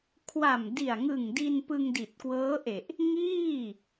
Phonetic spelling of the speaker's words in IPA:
kʰ w a˨˩ m d i˨˩ a̯ ŋ ɯ˨˩ ŋ d i˧ n p ɯ˧ ŋ d i˨˩ t̚ k w ɤː˦˥ ʔ e˨˩ ʔ | ŋ iː˥˩

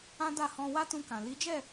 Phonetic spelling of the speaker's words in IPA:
ã˦ d a˦˨ h ɔ̃˧ w a˦ t ũ˧ k ã˨ l i˨˦ d͡ʒ ɛ˦˨

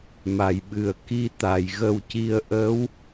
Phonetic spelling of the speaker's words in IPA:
m a˨˩˨ j ɓ ɨ˨˩ ə̯ k i˧ t̪ a˨˩ j ɣ ə˧ w c i˧ ə̯ ʔ ə˧˥ w

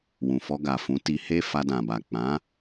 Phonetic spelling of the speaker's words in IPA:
w ũ˨ f ɔ˧ ɡ a˨ f ũ˨˦ t i˧ h e˦ f a˧ d ã˨ b a˨ k͡p ã˨˦

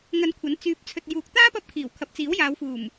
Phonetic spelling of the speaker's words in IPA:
ŋ ɐ˧ n kʷʰ ɐ˨˥ n t͡s yː˨˥ p̚ t͡sʰ ɵ˨ t̚ j uː˨ k̚ t̪ aː˥ p ɐ˧ p̚ kʰ iː˨˩ w kʰ ɐ˨ p̚ t͡s iː˨˥ w j aː˨˧ w f uː˨˩ m

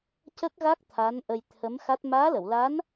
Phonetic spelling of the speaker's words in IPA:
c ə˦˥ k̚ ɣ a˦˥ k̚ t̪ʰ a˧˥ n ʔ ə˧ j t̪ʰ ə˧˥ m x a˦˥ t̚ m aː˧˥ l ə˨˩˨ w l a˧˥ n

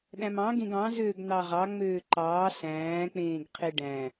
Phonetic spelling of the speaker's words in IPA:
ɗ æ̃ m ɑ̃ ɡ ẽ ɡ ɑ̃ z øː ɡ n̪ ɑ ʁ ɑ ŋ͡m øː ǃ ɑː ɬ æ̃ː k͡p ẽː ɡ qʰ e ɖ æ̃

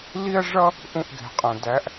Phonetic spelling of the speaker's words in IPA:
l i˥ ɐ̯ ʐ ʌ˥ | ʔ ũ˦˨ ʔ ɡ ɛ̤˩ qʼ ɛ̃˩ d æ˨˦ ʔ

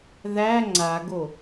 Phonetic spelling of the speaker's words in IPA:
ð æ ŋ͡ǀ a ɡ o

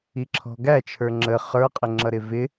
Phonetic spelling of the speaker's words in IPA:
i ǁʰ ɔ̤ ɡ æ t͡ʃʰ ə˞ ŋ͡ǁ ə χ ə˞ qʼ ɪ ŋ͡ǁ ʌ ɾ ɪ v ɪ

